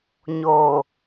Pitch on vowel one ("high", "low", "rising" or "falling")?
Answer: low